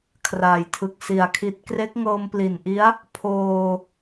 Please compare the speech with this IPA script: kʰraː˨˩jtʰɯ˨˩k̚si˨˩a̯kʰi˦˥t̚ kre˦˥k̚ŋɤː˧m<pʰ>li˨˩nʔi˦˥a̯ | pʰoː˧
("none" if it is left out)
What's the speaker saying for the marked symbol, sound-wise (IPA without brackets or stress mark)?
p